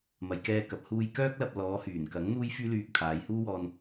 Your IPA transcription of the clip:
m ɐ˨ j k ɛː˧ k ɐ˨ p̚ h uː˧ j k œː˥ k̚ l ɐ˧ p̚ l ɔː˨˧ h yː˨˩ n k ɐ˨˥ ŋ n̪ uː˥ j f yː˥ l yː˧ k̚ t̪ʰ aː˨˧ j h uː˥ w ɔː˧ n

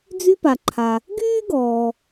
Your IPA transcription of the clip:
d͡z y˥ p a˨ ǃʰ a˨ | ɡ yː˥ ɡ ɔː˩

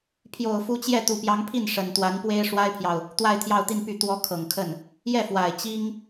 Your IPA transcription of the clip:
pʰ j o˨˩ ʊ̯ f u˧˥ t͡ɕ j ɛ˥˩ t̪ u˨˩ p j ɑ˧˥ ŋ pʰ i˥˩ n ʂ ə˨˩ n t̪ w a˧˥ n p w e˥ ɪ̯ ʂ w a˥ ɪ̯ pʰ j ɑ˨ ʊ̯ | t̪ w a˥˧ ɪ̯ t̪ʰ j ɑ˥˧ ʊ̯ t̪ i˥˧ n p y˥˩ t̪ w ɔ˧˥ kʰ ɤ˨˩ ŋ kʰ ə˥˩ n | j ɛ˥˩ f w a˨˩ ɪ̯ t͡ɕ i˥ ŋ

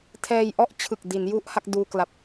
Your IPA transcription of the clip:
tʰ ɛː˧ j ʔ ɔ˥˩ ʔ t͡ɕʰ ɯ˨˩ k̚ d i˩˦ n j u˥˩ ʔ h a˥˩ k̚ d uː˧ k l a˨˩ p̚

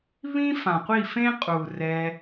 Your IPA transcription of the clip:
β ĩ˦ f ã˨ qʷ i˦˨ f ẽ˦ qʼ u˨ r ɛ˧

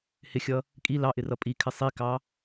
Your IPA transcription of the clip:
h ɪ xʲ ʌ | kʼ i l ɑ ʔ ɪ r ʌ pʼ i kʰ ɪ sˤ i k ɑ

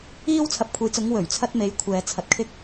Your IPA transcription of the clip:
iː˧ w t͡sʰ ɐ˨˥ p̚ kʷʰ e˨˥ j t͡s ʊ˨˥ ŋ w ɵ˨˩ ɥ t͡sʰ ɐ˥ t̚ m e˨˥ j kʷʰ ɛː˨ t͡sʰ ɐ˨ t̚ kʰ ɪ˥ k̚

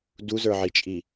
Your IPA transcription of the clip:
d u z ə˞ ʕ i t͡ʃʼ i

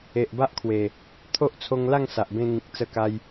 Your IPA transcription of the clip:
e˨ ʔ b a˦ ʔ kʰ w e˨˩ | t̪ʰ o˦ ʔ t͡sʰ o˧ ŋ l a˥˧ ŋ s a˨ ʔ b ẽ˧ ŋ ĩ˨ k̚ t͡s ə˧ k a˧ j

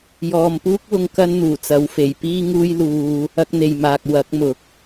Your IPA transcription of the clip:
j ɔː˨ m p uː˥ k̚ w ʊ˧ ŋ k ɐ˥ n n̪ uː˨˩ t͡s ɐ˨˥ w f e˨˩ j p iː˥ ŋ uː˥ j l uː˧ | ɐ˧ k̚ n̪ e˨ j m aː˨ k̚ w ɐ˨˥ k̚ m ʊ˨ k̚

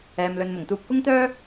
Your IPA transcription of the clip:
ɛː˨ m l ɵ˨ n m ʊ˨˩ ŋ t̪ uː˧ p̚ k ʊ˥ ŋ t̪ œː˥

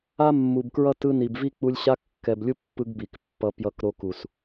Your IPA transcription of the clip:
a˦ mː u˨ b k ɹ ʌ˦ t ɯ˧ n i˨ b v i˦ k͡p u˧ lʲ ɕ a˦ kː ɛ˨ b lʲ u˦ pː ɯ˧ ɡ b i˨ k pː ʌ˦ p j ʌ˧ k ɾ o˧ k u˨ s

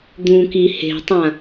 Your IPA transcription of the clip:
d̪ ũ k i h e̤ tˤ ã

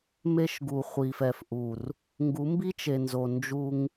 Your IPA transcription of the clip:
m e˦ ʃ ɡ u˨ χʷ i˨ f ɛ˨ f ʔ u˨ r | ŋ ɡ u˨˦ m b i˦ t͡ʃ e˨ n z o˨ n d͡ʒ u˦ ŋ

